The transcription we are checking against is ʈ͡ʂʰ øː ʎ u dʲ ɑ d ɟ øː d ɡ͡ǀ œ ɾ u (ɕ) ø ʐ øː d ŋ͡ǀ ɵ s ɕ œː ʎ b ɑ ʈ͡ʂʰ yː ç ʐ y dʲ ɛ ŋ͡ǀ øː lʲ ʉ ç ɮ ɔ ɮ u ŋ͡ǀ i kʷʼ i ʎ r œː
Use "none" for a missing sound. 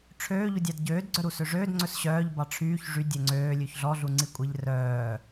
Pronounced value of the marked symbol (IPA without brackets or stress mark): s